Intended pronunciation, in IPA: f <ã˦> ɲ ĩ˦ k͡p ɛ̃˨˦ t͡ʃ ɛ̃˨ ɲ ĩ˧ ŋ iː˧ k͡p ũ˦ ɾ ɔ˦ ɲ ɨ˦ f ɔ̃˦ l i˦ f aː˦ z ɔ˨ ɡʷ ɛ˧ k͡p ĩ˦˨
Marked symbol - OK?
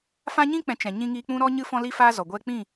yes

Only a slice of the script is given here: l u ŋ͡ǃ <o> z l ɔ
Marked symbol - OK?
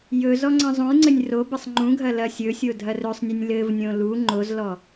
yes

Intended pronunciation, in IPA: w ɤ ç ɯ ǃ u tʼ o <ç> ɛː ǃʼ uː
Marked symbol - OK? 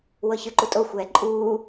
no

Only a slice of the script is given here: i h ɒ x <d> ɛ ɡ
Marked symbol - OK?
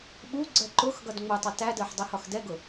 yes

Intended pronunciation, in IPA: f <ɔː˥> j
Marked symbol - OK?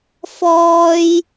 yes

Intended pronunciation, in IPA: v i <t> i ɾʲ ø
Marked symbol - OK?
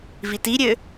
yes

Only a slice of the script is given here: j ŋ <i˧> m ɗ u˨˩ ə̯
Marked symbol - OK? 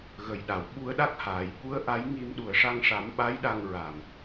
yes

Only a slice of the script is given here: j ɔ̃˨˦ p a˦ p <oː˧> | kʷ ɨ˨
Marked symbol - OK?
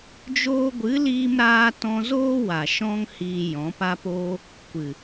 no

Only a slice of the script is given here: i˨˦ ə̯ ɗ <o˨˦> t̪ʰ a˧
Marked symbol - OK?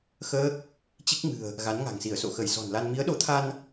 yes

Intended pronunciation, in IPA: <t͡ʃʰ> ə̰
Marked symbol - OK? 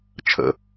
yes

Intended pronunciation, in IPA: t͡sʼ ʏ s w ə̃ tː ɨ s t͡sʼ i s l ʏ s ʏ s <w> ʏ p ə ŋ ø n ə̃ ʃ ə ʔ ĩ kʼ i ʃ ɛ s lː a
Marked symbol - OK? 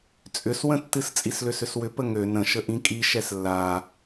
yes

